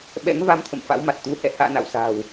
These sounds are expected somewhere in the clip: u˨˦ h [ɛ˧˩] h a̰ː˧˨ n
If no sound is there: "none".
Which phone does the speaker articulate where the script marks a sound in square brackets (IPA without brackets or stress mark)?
ɛ̰˧˨